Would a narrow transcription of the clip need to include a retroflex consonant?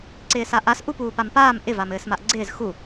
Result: no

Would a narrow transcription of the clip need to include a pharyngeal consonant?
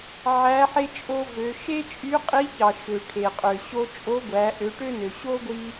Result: yes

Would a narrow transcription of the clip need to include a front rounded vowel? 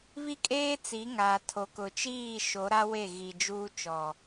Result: no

